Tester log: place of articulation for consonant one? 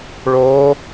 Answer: retroflex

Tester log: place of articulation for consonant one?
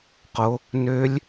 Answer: uvular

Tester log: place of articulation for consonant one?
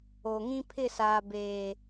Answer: velar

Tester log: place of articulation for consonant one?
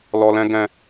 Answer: alveolar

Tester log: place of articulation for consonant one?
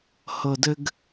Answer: glottal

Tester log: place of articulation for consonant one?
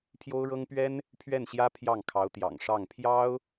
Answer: labial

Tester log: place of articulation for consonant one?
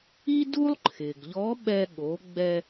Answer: alveolar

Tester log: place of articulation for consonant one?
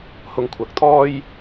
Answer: glottal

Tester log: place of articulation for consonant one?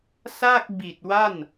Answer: alveolar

